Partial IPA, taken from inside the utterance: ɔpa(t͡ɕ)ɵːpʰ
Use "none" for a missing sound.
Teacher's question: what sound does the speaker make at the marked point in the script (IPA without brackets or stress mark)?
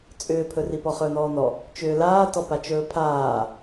t͡ʃ